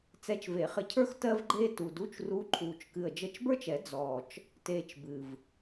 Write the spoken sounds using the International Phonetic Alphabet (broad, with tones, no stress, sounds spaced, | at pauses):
t͡s ɛ˧˥ t͡ʃ v e˨˩˦ χ ɘ˧ cʰ ə˞˥ x t ɜ˥ v ɡ͡ǃ eː˥ t u˨˩ d u˧˥˧ t͡ʃ r u˧˥ ǃʼ uː˨˩ t͡ʃ k ɨ˨˩ ə̯ d͡ʒ ə˧˥ t͡ʃ b ə˞˥ t͡ʃ ɛ˨˩˦ d͡z ɔː˨˩ t͡ʃ | t eː˧ t͡ʃ b ɨ˨˩ v